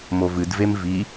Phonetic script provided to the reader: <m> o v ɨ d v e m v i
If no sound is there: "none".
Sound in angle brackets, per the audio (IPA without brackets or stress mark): m